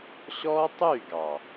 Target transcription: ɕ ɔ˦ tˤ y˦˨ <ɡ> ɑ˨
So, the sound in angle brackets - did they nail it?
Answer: yes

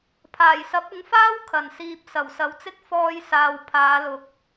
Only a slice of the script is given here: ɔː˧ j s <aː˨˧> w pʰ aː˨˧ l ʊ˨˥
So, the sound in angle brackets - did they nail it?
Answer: no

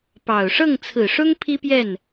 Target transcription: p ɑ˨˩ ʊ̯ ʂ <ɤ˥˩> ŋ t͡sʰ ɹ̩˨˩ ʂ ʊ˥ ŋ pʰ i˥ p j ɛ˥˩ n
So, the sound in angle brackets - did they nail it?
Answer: yes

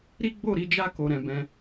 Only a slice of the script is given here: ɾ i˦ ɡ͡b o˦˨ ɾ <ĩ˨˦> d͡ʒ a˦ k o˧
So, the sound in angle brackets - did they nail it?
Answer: no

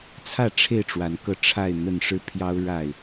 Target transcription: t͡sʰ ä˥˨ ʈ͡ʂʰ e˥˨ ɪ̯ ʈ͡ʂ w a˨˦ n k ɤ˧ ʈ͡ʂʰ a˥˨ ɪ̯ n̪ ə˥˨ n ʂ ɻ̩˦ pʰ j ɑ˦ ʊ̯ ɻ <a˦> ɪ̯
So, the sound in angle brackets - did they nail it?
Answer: no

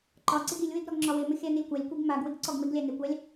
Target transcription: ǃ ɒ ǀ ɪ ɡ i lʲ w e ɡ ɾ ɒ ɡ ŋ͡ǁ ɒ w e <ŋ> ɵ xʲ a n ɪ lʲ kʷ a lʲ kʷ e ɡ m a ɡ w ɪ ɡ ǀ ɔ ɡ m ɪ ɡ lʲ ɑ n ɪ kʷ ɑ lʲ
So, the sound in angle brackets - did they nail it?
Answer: no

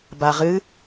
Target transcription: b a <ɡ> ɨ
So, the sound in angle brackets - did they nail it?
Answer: no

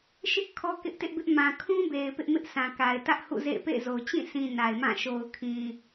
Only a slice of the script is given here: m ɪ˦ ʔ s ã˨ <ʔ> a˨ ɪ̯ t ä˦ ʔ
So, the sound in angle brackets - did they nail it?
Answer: no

